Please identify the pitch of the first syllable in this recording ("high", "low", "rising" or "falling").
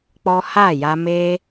high